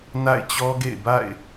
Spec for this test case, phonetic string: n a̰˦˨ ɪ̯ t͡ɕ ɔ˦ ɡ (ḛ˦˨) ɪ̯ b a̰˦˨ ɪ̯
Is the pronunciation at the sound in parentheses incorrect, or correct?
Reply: correct